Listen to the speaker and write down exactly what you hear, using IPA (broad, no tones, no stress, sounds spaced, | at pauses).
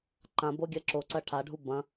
ǃ ã b o ɡʲ ɐ ǁ o ǀ ɐ ʈʰ a ɖʱ u b ɐ̃